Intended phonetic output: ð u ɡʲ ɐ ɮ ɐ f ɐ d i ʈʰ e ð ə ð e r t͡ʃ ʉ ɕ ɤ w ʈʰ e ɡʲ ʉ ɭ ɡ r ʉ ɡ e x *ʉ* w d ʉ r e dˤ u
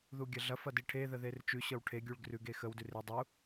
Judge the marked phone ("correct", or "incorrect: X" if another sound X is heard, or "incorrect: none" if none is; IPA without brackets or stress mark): incorrect: ə